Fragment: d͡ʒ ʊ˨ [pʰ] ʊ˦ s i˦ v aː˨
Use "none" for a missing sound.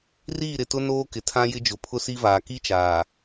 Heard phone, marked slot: pʰ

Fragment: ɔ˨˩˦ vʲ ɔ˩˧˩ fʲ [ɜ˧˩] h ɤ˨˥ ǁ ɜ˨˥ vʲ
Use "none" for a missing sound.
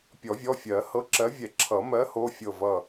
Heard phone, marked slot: ɜ˨˩˦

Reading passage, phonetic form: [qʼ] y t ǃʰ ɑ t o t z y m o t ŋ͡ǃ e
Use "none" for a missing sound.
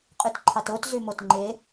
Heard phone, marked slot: qʼ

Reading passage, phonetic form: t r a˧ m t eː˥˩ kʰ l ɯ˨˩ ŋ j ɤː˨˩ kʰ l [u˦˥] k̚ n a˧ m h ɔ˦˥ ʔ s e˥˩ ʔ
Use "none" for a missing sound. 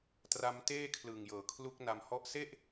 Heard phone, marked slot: u˦˥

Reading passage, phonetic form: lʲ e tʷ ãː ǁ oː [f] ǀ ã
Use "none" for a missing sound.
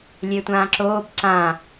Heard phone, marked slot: b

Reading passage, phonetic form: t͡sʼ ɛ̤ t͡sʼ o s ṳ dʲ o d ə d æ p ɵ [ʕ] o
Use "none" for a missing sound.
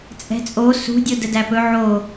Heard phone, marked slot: ʕ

